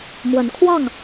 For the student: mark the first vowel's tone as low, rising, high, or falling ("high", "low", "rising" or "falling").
rising